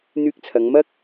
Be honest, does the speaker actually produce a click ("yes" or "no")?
no